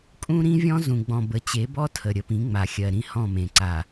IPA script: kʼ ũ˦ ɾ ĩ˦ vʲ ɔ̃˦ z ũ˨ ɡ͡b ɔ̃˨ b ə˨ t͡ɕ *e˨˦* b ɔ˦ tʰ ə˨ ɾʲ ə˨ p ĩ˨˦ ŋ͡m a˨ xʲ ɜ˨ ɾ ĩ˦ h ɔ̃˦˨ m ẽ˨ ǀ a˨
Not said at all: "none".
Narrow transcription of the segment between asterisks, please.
e˨˦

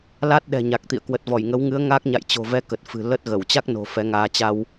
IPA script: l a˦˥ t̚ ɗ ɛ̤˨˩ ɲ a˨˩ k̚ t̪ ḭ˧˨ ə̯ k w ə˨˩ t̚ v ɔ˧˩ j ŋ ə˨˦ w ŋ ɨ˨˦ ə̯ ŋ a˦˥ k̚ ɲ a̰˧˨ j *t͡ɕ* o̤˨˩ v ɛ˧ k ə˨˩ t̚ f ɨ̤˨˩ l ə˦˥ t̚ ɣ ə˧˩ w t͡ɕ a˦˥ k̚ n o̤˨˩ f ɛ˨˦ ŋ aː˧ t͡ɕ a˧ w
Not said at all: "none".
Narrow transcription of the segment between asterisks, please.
t͡ɕ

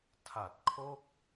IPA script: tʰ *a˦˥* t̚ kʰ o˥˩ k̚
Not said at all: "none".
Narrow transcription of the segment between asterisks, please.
a˨˩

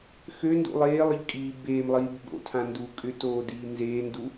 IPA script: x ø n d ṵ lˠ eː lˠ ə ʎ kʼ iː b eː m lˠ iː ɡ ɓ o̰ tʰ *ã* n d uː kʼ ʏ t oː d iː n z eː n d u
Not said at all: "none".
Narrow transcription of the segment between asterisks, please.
ã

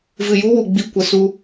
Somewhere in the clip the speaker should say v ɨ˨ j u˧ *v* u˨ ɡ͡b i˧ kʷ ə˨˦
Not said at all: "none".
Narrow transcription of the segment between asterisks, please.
w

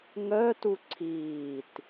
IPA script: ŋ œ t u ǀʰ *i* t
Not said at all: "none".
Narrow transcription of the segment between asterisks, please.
iː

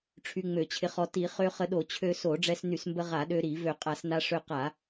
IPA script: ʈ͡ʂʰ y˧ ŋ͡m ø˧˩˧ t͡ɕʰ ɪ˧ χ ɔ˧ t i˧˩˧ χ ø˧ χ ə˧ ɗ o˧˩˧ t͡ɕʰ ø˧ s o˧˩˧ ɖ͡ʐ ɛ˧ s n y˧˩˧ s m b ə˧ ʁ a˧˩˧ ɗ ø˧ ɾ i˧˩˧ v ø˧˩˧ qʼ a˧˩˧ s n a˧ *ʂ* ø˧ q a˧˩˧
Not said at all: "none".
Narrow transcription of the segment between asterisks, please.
ʂ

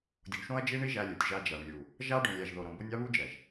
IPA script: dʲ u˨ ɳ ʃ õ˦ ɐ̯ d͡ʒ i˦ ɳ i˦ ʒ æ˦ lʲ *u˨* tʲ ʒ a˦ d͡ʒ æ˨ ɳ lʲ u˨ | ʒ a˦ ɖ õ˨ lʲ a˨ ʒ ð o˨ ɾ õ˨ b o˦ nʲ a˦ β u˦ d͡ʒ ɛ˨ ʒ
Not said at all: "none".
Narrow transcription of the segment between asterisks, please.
u˨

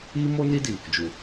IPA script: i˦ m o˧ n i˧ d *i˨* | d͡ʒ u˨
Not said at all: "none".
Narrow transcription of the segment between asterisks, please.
i˨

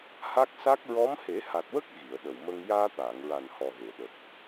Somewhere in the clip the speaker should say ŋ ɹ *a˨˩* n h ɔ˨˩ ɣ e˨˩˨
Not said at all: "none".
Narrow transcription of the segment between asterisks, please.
a˨˩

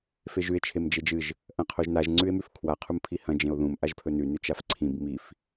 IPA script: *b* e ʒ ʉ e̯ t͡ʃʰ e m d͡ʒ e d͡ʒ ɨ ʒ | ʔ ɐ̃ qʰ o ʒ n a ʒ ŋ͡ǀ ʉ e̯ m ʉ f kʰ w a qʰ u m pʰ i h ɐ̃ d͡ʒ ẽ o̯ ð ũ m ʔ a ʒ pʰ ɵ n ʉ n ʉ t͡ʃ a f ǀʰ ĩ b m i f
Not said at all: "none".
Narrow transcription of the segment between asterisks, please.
f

